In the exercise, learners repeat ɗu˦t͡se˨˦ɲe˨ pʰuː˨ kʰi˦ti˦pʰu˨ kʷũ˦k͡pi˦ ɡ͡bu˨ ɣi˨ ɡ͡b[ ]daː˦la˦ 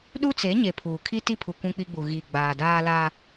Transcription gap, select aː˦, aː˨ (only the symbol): aː˨